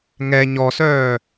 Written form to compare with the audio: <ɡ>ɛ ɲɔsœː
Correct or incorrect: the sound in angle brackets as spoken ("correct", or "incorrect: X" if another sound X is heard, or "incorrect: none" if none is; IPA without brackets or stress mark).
incorrect: ŋ